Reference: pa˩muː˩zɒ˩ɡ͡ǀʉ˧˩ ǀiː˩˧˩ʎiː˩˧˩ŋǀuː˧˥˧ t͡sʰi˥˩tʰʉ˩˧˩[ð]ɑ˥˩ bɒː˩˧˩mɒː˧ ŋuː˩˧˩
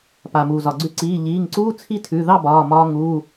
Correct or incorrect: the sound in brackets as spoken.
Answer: correct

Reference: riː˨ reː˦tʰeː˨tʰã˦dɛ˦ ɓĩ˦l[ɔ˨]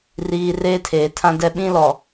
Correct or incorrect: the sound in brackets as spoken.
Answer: correct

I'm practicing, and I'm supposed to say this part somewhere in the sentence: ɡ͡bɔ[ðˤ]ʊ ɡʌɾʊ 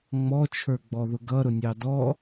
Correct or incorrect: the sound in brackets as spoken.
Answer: incorrect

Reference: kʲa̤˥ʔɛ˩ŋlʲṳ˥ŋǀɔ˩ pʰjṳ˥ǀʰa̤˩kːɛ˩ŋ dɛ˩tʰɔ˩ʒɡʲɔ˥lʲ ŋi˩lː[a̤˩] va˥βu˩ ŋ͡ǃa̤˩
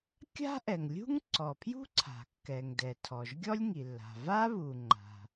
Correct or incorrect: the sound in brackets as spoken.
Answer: correct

